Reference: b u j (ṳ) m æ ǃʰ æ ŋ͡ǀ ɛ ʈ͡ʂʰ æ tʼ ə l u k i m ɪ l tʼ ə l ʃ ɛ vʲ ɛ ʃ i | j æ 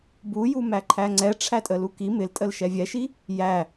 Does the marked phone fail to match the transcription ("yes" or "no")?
yes